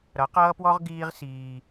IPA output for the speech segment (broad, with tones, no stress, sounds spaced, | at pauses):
ɾ ʌ˨˦ q ʌː˦ p w ɔ˦ ʁ ɡ iː˦ ʁ s iː˦